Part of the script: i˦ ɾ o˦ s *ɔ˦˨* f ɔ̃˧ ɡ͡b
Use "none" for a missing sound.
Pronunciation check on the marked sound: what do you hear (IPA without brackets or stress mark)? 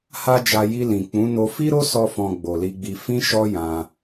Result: ɔ˦